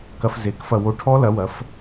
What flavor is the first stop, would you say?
plain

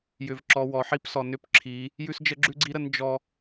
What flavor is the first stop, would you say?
click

